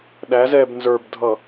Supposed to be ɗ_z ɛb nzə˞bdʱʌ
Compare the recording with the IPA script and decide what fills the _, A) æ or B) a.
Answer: A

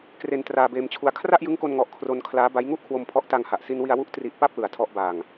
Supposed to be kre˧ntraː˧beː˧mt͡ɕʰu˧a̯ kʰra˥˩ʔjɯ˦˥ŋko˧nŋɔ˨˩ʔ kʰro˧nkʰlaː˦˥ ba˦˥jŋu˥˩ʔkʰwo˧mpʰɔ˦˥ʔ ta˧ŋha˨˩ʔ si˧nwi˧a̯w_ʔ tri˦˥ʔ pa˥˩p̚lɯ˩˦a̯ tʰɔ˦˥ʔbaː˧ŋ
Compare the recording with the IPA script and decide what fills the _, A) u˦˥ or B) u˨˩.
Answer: A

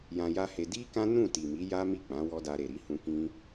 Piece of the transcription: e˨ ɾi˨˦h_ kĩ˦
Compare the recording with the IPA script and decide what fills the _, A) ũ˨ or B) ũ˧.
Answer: B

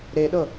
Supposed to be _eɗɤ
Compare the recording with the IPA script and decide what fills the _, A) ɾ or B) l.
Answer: A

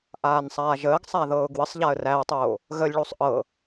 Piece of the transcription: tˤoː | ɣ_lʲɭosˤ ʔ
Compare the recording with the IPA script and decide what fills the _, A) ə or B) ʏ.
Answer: A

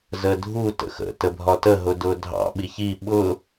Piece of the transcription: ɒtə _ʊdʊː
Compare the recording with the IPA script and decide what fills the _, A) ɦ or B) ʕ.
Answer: A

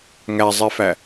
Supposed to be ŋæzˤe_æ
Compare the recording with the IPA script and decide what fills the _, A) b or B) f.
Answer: B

